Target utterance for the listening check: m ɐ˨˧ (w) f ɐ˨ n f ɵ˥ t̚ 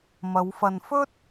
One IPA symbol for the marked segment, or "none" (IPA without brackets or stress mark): w